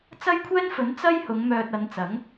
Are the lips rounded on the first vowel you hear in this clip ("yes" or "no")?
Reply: no